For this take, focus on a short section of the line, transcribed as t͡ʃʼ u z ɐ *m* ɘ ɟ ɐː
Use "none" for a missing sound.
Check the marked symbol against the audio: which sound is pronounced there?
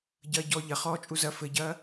f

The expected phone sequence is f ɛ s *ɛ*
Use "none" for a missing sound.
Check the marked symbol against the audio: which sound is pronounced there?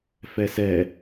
ɛ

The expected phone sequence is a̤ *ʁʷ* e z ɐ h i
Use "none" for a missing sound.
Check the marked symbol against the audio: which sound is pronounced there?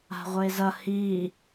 ʁʷ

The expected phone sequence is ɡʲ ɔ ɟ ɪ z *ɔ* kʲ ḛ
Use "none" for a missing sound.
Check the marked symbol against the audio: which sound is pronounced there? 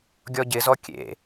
ɔ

